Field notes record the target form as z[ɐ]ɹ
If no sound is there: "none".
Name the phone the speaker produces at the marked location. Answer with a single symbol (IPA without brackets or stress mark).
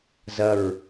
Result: ɐ